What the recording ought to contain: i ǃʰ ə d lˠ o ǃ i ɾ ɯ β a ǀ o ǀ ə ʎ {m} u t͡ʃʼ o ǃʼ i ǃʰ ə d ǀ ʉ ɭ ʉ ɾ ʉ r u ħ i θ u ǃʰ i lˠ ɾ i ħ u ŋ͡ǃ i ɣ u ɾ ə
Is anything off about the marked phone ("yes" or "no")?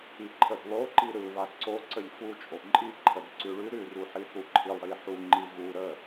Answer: yes